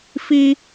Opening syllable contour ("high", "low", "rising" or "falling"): high